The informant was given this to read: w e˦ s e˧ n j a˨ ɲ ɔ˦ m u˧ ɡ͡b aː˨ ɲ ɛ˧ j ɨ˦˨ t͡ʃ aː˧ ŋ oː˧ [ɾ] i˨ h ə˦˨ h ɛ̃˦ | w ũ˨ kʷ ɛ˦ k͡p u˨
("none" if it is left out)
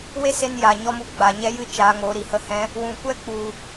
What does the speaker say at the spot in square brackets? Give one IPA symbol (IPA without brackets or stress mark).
ɾ